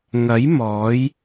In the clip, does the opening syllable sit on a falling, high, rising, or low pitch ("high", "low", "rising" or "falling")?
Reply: rising